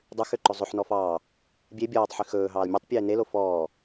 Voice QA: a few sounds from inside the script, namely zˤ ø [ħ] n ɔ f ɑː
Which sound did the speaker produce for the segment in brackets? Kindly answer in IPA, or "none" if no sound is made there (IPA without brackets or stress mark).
ħ